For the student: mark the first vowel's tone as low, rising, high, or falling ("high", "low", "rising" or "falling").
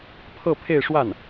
falling